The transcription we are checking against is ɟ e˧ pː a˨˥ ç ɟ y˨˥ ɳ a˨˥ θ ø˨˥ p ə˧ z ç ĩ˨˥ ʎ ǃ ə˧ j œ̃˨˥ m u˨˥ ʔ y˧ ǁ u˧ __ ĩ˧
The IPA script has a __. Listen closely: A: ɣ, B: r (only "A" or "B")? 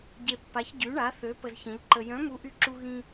A